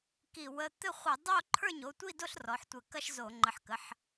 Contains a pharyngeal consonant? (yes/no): yes